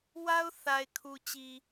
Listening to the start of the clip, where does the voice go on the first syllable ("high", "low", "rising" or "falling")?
high